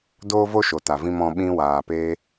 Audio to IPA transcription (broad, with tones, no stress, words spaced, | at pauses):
doː˦vo˦ʃo˨ta˨ vĩ˨mɔ̃˨ ɓĩ˧waː˨peː˧